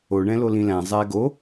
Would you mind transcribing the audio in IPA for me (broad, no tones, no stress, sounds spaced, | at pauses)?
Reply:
o ɳ ɛ̃ l o l ĩ l æ̃ zˤ ɛː ɡ o